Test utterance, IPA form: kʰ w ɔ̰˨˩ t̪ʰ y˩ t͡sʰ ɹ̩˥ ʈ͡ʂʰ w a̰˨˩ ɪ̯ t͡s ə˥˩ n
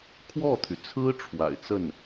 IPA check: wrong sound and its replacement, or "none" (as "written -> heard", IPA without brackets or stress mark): ɔ̰˨˩ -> ɔ˥˩